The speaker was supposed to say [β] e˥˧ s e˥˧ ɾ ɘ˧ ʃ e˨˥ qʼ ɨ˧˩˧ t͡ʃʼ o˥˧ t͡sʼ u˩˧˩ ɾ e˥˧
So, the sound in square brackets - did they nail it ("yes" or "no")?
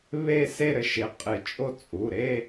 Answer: yes